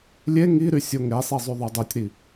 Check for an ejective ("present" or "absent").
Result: absent